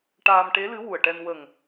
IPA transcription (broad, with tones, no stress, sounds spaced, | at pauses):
ʈ aː˧ m ʈ e˧˥ l ɨ˧˥ w u˨˩ ə̯ ʈ ɛ˧ n w ə˨˩ ŋ